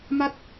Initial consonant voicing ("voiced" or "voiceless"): voiced